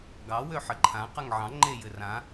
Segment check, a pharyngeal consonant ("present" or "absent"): present